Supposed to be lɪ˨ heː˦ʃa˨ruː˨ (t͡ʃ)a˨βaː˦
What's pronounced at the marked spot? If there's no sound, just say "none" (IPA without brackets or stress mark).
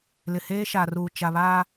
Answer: t͡ʃ